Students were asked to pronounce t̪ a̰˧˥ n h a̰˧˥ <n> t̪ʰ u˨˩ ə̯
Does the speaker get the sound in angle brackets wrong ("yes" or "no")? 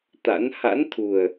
no